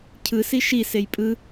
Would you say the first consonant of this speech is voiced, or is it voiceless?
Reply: voiceless